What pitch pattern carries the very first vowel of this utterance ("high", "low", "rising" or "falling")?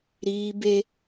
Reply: high